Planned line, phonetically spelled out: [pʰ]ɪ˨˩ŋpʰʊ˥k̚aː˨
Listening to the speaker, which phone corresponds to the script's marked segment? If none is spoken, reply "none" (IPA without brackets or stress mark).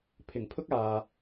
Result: pʰ